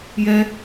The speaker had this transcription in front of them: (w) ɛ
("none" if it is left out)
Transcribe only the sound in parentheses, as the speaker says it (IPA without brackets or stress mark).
j